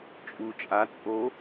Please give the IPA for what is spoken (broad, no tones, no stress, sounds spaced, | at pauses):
t͡ʃʼ u t͡ʃʼ a t͡sʼ o